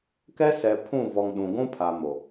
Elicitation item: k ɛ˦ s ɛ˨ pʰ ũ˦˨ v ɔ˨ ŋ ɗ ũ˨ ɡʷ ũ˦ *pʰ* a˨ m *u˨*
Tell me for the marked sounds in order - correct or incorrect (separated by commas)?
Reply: correct, incorrect